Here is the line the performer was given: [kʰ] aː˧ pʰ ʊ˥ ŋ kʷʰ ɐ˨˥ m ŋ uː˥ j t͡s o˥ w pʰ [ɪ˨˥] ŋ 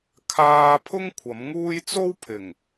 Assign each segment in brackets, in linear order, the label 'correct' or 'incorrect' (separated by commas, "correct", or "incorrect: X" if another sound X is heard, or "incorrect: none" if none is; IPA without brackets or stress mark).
correct, incorrect: ɪ˨˩